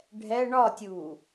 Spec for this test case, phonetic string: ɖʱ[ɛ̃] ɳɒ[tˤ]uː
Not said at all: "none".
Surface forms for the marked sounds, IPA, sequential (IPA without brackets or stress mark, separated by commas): ɛ, tʲ